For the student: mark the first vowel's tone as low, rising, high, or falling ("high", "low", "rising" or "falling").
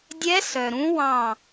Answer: rising